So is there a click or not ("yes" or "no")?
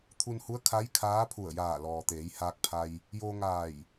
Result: no